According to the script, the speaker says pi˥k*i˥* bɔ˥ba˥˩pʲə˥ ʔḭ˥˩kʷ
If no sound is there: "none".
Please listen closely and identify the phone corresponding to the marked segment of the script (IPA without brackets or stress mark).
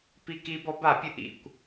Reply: i˥